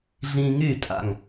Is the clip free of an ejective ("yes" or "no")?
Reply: no